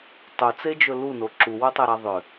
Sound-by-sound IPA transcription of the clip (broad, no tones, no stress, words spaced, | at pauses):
tˤɵt͡sed͡ʒɵ luno ǁuwotˤɛɾa ðˤʏ